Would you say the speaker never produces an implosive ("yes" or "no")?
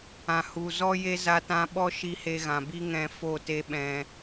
no